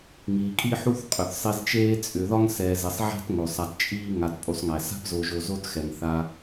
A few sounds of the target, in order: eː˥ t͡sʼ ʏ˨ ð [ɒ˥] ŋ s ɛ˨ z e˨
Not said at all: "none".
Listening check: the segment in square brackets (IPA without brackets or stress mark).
ɒ˥